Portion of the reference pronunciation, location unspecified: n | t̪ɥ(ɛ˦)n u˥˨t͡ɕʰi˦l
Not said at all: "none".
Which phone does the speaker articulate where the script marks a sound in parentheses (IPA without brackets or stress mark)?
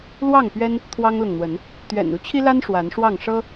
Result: ɛ̰˨˩